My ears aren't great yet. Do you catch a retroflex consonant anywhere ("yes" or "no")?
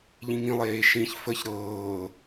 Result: no